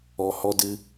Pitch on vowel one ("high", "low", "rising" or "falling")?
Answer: low